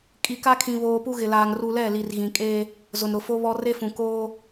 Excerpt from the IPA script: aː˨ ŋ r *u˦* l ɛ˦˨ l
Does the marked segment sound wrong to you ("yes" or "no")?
yes